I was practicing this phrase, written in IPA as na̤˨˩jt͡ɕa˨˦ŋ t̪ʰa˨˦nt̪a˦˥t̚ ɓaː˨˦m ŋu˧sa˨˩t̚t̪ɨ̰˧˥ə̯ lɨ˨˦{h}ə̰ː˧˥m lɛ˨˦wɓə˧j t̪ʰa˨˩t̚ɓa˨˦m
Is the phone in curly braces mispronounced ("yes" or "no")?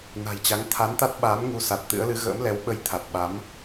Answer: yes